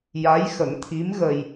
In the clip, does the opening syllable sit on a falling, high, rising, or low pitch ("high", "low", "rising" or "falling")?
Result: rising